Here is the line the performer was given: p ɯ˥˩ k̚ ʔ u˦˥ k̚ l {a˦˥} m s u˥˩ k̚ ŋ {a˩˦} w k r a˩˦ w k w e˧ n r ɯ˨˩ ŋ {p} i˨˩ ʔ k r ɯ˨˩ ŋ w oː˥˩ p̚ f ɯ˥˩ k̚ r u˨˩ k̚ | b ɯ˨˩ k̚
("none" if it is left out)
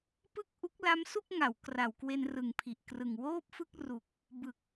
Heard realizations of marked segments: a˦˥, a˩˦, pʰ

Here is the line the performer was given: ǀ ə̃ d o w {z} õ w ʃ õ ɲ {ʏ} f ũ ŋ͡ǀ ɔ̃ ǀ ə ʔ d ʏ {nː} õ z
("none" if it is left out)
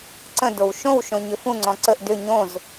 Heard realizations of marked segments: ʃ, ʏ, ɲ

